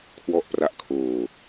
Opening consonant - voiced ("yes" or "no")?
no